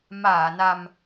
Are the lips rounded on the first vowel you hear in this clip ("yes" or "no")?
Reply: no